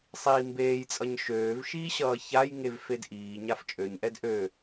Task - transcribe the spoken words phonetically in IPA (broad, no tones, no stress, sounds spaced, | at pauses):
sˤ iː m b eː j t͡sʼ ʌ ɲ ʃ øː v ʃ iː ɕ ʌː ç a j ŋ e v f e d ʔ iː ɲ a f t͡ʃʼ ø ɲ ʔ ɛ d ʔ ø